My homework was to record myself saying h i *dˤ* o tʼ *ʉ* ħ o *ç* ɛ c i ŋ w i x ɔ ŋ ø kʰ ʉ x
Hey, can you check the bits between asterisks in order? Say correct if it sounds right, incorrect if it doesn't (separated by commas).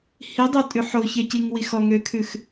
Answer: correct, correct, correct